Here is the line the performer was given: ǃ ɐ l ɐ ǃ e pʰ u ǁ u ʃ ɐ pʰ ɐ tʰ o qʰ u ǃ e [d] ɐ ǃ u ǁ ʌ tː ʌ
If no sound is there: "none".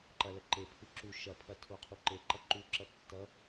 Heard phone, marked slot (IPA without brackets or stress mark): ǃ